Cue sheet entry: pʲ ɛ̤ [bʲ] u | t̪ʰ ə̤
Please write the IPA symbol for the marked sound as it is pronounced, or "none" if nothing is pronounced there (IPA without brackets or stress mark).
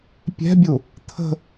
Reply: bʲ